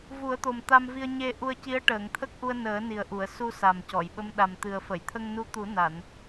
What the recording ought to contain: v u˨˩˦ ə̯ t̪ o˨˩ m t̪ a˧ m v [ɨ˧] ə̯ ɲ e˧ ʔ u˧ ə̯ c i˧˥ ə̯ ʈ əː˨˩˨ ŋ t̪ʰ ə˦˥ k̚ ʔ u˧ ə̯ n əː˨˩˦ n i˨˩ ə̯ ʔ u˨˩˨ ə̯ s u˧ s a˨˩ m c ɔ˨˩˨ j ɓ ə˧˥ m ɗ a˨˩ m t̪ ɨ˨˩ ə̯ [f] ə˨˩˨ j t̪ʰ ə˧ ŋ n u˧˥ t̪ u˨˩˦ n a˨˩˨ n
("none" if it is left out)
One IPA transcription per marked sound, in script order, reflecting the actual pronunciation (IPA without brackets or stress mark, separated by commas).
i˧, f